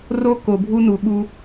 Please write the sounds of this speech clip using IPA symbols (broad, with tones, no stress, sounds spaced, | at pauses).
r o˦ k o˩ bʱ u˦ n u˩ ɠ u˨